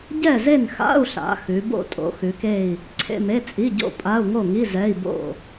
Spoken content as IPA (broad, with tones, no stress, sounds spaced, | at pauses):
ɟ ɛ˥˨ z e˥˨ n x a̰˧˥˧ u̯ ɬ a̰˩˧ x ʉ˩˧ b o̰˥˨ tʼ o̰˩˧ x ʉ˩˧ k e˥˨ i̯ | ǀʰ ḛ˧˥˧ m e˧˥˧ t͡sʼ i˧˥˧ ɟ o̰˥˨ pʼ a˧˥˧ u̯ ŋ o˥˨ ŋ i˧˥˧ z ɛ˧˥˧ i̯ b o̰˥˨